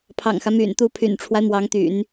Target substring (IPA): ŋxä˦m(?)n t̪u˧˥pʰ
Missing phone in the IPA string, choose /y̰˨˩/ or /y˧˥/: y̰˨˩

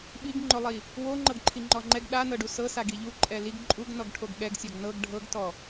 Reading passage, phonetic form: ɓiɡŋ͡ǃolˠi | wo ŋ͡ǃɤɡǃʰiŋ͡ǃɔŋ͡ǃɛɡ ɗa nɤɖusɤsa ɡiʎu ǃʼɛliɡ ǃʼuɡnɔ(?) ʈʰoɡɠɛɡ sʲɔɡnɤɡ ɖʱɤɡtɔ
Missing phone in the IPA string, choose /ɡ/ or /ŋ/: ɡ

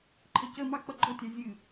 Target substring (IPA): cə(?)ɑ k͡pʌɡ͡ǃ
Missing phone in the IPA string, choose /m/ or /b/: m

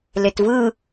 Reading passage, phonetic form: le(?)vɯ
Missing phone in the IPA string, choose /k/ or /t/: t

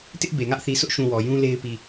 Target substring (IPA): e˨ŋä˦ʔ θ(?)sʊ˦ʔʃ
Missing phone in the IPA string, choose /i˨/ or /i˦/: i˨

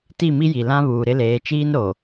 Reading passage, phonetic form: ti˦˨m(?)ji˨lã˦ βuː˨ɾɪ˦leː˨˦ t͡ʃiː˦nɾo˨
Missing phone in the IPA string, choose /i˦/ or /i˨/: i˦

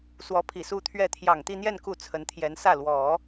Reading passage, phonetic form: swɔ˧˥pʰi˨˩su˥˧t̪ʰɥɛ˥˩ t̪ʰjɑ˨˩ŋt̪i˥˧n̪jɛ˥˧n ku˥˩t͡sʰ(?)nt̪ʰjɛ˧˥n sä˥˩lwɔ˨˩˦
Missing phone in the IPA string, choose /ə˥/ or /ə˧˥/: ə˧˥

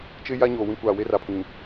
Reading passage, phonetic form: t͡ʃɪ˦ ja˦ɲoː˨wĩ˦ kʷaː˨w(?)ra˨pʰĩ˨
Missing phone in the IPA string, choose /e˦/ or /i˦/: e˦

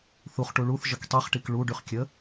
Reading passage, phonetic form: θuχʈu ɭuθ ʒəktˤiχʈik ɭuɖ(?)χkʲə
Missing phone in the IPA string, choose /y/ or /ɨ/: y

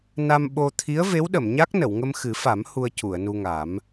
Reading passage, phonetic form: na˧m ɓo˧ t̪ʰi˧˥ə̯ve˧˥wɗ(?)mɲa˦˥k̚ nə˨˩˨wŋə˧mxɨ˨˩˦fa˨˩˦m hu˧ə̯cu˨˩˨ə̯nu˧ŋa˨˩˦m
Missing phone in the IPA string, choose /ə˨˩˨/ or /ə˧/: ə˨˩˨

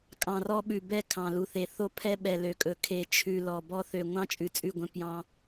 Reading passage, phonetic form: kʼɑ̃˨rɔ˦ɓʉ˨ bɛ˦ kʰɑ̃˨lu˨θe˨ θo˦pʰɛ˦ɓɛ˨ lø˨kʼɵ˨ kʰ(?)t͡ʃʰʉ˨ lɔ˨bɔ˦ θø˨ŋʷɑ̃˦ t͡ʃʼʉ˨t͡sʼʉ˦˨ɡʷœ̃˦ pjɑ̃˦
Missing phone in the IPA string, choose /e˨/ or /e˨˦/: e˨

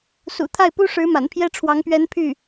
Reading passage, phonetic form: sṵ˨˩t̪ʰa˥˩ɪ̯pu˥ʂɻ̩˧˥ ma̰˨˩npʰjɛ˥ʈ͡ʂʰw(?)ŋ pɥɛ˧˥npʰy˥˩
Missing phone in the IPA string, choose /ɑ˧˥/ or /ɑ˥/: ɑ˧˥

